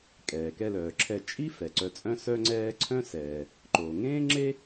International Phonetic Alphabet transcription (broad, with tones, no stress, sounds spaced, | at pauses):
kʼ ɛː˩ k ɛ˧ l œː˩ ǁʰ ɛ˧ t͡ʃʼ i˥ f ɛ˩ ǀ œ˧ t͡sʼ œ̃˥ s œ˥ ŋ͡ǀ ɛː˥ ǀʰ œ̃˥ s ɛː˩ | ǃ o˩ ŋ ẽː˥ ŋ͡ǁ e˥